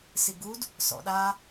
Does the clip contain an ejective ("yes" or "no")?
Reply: no